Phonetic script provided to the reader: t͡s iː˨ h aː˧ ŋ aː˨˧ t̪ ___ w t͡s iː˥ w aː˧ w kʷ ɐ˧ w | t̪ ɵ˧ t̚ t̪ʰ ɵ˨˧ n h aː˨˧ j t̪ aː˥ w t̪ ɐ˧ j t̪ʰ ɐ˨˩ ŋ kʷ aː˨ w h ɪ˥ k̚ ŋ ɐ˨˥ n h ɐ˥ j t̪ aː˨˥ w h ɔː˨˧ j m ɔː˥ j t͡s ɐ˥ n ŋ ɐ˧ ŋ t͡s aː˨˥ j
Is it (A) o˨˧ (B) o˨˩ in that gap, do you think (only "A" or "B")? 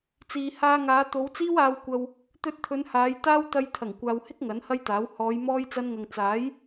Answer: A